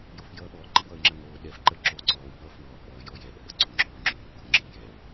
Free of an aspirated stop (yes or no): yes